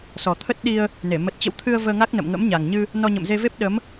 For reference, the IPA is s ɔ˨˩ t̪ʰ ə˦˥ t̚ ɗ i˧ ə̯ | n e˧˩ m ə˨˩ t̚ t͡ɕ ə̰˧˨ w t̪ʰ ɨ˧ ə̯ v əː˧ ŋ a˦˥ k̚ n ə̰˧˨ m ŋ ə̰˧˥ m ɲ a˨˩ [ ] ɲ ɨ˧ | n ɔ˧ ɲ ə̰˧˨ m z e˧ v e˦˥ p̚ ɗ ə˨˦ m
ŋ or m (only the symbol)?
ŋ